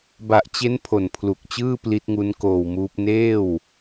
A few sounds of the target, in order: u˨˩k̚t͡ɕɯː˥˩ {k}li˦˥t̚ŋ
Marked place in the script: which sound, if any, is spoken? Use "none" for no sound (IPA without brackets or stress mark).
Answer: p